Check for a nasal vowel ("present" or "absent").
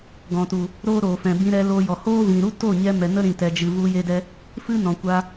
present